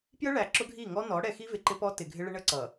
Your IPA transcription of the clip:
p j ə˦ ɭ æ˨ ǁ ʊ˦ ɡʱ i˦˨ ŋ ɔ˦ n ɔ˨˦ ɽ ɛ˨ x i˦ v ɪ˨ ǃ ɪ˦ p ɔ˦ t ɪ˨ ɡʱ ɪ˦ ɭ ɪ˦ ɳ ə˦ ǀ ʌ˨

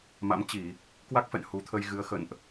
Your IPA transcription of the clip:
m a̰˧˥ m t͡ɕ i˧˩˨ | k w a˦˥ k̚ f ɛ̰˧˨ n h u˨˦ t̪ʰ ə˧ j ɣ ɨ˨˦ ə̯ x ə̰˧˨ n ʔ

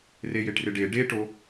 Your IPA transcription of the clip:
r e j e ʈ r ɪ ɖ e ɖ e ʈ o

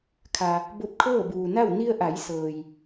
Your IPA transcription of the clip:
kʰ a˩ | b o˧ p̚ kʰ ɤː˥˨ b uː˩ n a˥˨ w n i˧ ə̯ ʔ a˩˧ j s ɤː˩ j

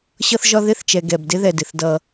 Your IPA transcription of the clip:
ɕ ʌ˦ θ ʒ ɒ˦ ð ɪ˦˨ θ t͡ʃ ɛ˨ ɡ ɛ˨ b d ɪ˦ ð ɛ˨ d ɪ˨ θ d ʌ˦

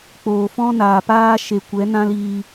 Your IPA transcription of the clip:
k͡p oː˨ f ɔ̃˦ n aː˨ p aː˦ ʃ e˨ kʷ ɛ˨˦ n ã˦ l iː˧

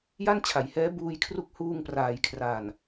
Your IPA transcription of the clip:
j a˥˩ n t͡ɕʰ a˩˦ j h ɛː˦˥ b uː˧ j kʰ r u˦˥ k̚ h uː˧ ŋ p r aː˩˦ j kʰ r a˨˩ n

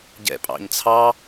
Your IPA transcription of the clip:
ɟ ɛ̰ pʼ ɑ̰ ɲ t͡sʰ ɑ

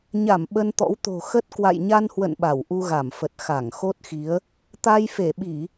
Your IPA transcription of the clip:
ɲ a˧˩ m ɓ ə˧ n t̪ ɔ̰˧˥ w t̪ o̤˨˩ x ə˦˥ t̚ k w a̰˧˨ j ɲ a˧ n h w ə̰˧˨ n ɓ a˧˩ w ʔ u˧ ɣ a˧˩ m f ə˨˩ t̚ x a˧˩ ŋ x o˦˥ t̚ x i˨˦ ə̯ | t̪ a˧ j f e˧˩ ɓ i˧˩˨

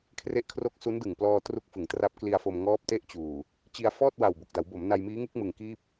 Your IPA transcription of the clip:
kʰ r e˦˥ ʔ kʰ r o˦˥ k̚ s u˦˥ n d ɯ˨˩ ŋ p l ɔː˧ t r u˦˥ k̚ f ɯ˩˦ ŋ t r a˦˥ p̚ k l i˧ a̯ f o˧ m ŋ ɔː˦˥ p̚ t e˦˥ ʔ t͡ɕ uː˨˩ | t͡ɕ i˧ a̯ f ɔː˥˩ t̚ w a˨˩ w b o˨˩ k̚ d a˩˦ w b o˩˦ m n a˧ j m iː˦˥ ŋ ɯ˦˥ k̚ m ɯ˨˩ ŋ k iː˥˩ p̚

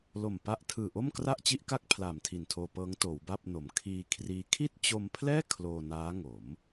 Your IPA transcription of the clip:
l o˨˩ m p a˦˥ ʔ tʰ ɯː˨˩ ʔ o˥˩ m k r a˥˩ ʔ t͡ɕ i˦˥ ʔ k a˦˥ k̚ pʰ l aː˨˩ m tʰ i˨˩ n tʰ oː˧ p ɤː˦˥ ŋ t oː˩˦ w b a˥˩ p̚ n o˩˦ m kʰ iː˧ kʰ r iː˦˥ kʰ i˥˩ t̚ t͡ɕ o˧ m pʰ l ɛː˥˩ kʰ l oː˧ n aː˦˥ ŋ o˩˦ m

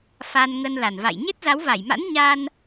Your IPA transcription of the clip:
f a˧ n ŋ ə˧ n l a˨˩ n v a̰˧˨ j ɲ e˦˥ t̚ z a˨˦ w v a˧˩ j m a̰˧˥ n ɲ a˧ n

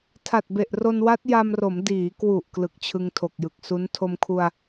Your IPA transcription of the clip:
tʰ a˨˩ t̚ b e˨˩ ʔ r o˧ n w a˦˥ t̚ j a˧ m r o˩˦ m d iː˩˦ k w u˨˩ ʔ k l ɯ˨˩ k̚ t͡ɕʰ ɯ˧ ŋ tʰ o˨˩ k̚ j ɯ˨˩ k̚ s u˦˥ n tʰ o˧ m kʰ u˧ a̯

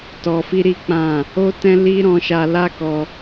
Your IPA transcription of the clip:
t ɔ˧ f i˦ ɾ i˦ k͡p ã˦˨ | o˦ t ɛ̃˦ l i˦ ɾ ɔ̃˧ ʃ a˧ l a˦ k ɔ˧

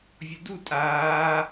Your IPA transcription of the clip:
vʲ ʊ d u tʼ aː

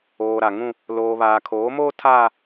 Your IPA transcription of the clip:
oː˨ ɾ a˨ ŋ ũ˦ | l oː˨ β aː˨ kʰ oː˨˦ m oː˦ tʰ aː˦

